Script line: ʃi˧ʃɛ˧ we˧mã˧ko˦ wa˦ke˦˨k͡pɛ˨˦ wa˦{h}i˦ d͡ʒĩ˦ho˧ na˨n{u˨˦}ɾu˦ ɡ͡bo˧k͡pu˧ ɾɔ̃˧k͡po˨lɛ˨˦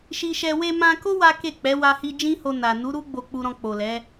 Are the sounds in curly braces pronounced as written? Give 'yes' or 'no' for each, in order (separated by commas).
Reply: yes, yes